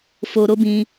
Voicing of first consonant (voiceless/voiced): voiceless